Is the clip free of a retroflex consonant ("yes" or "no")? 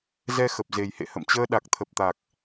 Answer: yes